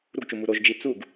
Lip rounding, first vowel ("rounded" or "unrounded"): rounded